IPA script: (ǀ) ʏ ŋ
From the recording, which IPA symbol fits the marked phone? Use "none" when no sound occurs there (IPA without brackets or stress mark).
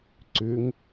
ǀ